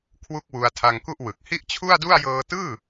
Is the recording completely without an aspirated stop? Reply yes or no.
no